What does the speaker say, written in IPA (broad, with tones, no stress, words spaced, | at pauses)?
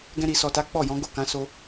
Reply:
ɡɛ̃˧ɾi˨sɔ˨ta˨˦ k͡pɔ˦˨jɔ̃˨˦ ɡo˦˨kã˨˦so˧